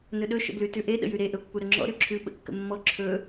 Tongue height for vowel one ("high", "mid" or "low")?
mid